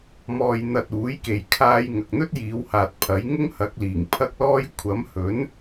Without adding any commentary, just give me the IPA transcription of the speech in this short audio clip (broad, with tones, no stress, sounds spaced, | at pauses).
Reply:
m ɔː˧ j n̪ ɐ˧ t̚ uː˨˥ j k e˨ j kʰ aː˥ j ŋ ɐ˨ k̚ n̪ ɵ˥ t̚ j iː˨˧ w h aː˨ t̚ pʰ ɐ˨˥ j ŋ ʊ˥ ŋ h ɐ˨˥ k̚ l iː˨˩ ŋ pʰ ɐ˥ k̚ l ɔː˥ j kʷʰ ɐ˨˥ m h ɵ˨˥ n